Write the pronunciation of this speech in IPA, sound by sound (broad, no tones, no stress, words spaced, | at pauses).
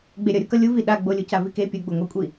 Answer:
ɡ͡beɾʲʌ ɾʲokʌlʲuvi ɗaɡ͡bolʲuca vike pʲuɡ͡boŋʷekʷʼi